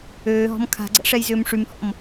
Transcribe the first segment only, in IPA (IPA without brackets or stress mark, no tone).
øː